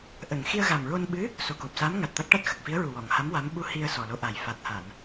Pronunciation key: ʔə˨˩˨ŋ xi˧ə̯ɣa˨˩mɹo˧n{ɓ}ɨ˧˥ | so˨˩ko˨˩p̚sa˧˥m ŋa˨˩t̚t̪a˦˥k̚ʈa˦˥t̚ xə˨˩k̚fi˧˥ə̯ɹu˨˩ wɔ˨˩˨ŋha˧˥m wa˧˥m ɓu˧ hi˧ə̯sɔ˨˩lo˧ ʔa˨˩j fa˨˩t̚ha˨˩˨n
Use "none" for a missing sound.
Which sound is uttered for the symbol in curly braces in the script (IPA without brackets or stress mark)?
ɓ